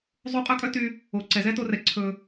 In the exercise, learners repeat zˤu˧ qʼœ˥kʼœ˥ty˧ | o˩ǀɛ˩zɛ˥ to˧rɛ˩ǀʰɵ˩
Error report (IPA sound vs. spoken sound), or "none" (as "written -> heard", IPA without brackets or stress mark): none